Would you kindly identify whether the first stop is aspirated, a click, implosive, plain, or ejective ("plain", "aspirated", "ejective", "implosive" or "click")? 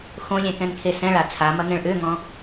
plain